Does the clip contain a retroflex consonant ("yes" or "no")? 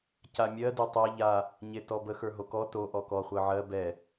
no